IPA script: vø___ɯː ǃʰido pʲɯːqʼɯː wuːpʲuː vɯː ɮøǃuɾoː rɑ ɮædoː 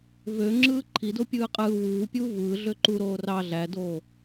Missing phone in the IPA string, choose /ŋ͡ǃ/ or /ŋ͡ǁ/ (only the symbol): ŋ͡ǁ